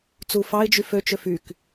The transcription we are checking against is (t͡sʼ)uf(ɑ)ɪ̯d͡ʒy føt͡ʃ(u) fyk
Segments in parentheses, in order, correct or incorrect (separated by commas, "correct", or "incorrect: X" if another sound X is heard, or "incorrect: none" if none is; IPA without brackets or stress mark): incorrect: t͡s, correct, incorrect: ø